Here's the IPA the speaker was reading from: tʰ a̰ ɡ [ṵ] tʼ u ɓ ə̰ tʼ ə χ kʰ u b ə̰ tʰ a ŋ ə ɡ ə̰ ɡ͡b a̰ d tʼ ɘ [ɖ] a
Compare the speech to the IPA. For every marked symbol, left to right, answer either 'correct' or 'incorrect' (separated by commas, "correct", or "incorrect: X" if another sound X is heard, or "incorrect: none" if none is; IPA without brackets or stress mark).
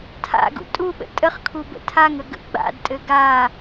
correct, incorrect: ɡ